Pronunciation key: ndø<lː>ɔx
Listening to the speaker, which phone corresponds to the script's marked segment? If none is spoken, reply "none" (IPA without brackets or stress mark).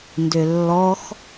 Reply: lː